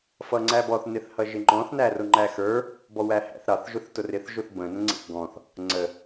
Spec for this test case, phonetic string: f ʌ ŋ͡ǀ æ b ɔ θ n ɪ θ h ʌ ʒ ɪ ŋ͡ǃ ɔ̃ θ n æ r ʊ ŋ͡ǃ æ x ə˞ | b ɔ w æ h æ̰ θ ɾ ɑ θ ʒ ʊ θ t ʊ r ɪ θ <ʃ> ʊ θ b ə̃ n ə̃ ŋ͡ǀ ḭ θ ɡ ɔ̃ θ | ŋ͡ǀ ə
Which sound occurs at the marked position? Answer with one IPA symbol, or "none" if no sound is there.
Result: ʒ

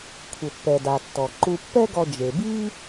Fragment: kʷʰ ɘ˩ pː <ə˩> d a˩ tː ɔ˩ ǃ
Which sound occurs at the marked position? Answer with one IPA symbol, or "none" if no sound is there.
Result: ɛ˩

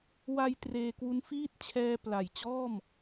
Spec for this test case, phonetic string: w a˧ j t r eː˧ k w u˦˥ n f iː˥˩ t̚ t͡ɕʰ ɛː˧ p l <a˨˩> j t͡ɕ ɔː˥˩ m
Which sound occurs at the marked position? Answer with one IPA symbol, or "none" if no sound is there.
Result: a˨˩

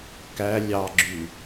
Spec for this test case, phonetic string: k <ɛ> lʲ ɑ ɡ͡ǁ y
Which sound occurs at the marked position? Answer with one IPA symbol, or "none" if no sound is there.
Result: æ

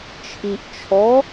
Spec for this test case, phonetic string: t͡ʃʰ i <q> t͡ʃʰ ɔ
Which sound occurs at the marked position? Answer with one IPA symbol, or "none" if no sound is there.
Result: ʔ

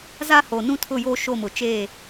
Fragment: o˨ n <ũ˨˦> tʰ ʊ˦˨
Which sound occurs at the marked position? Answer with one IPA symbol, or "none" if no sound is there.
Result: ũ˦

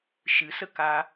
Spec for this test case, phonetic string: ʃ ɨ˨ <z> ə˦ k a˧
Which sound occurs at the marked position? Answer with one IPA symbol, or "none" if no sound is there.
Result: s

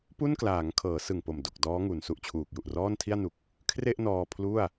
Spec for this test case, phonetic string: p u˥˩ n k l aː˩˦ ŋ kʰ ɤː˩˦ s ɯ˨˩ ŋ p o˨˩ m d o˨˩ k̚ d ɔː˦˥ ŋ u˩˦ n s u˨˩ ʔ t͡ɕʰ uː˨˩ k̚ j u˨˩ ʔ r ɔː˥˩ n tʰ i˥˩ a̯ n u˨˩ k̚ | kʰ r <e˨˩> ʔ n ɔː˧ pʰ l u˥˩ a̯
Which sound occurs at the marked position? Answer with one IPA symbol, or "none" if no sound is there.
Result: e˥˩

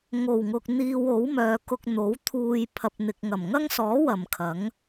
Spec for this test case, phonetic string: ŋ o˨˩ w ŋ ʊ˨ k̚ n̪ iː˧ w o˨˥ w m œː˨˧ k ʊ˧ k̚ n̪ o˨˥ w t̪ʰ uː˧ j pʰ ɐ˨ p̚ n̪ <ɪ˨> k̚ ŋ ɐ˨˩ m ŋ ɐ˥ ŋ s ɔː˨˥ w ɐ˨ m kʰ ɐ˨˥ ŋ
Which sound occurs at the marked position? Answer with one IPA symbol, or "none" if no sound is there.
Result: ɪ˨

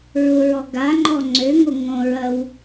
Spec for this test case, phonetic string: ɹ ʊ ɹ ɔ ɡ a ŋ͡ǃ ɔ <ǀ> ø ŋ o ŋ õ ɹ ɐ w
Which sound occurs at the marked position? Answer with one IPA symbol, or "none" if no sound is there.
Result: ŋ͡ǀ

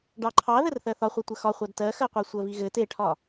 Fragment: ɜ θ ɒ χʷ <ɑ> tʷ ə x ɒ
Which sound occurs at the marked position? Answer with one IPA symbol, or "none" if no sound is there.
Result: ɑ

